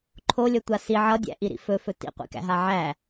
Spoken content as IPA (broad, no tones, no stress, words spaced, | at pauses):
ǃʰolʲʌtʷa si ʕʌdʲæ̰ʔiɾḭ fɵfɵ tḭqʷḭkæ̰ɦa ʕæ